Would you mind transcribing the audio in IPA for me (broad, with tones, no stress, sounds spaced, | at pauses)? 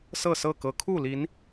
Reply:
s ɤ˥˨ s ɤ˥˨ k ɤ˨˦ kʰ u˥˨ l i˨˦ n